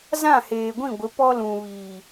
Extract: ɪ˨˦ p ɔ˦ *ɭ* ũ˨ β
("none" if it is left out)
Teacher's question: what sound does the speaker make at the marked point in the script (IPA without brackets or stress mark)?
l